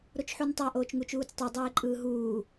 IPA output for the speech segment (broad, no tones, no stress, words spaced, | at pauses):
ɾot͡ʃħuntˤa ʔoːt͡ʃŋut͡ʃuːt͡stˤɯ dˤeːǃʼɯːɦuː